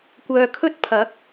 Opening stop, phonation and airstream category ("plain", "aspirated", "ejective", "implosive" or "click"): plain